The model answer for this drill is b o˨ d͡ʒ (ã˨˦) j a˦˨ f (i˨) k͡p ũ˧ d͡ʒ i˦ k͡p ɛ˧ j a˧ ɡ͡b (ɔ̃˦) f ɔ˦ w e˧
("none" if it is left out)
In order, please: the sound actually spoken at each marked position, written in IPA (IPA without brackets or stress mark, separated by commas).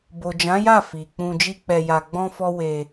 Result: ã˨˦, i˨, ɔ̃˦